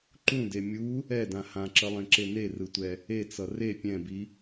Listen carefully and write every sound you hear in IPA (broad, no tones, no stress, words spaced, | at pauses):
ǃũde mʲu | ɛdã hãǁʌlˠẽǁe nerɯtʷɛ | et͡sʌ re pʲɛ̃bi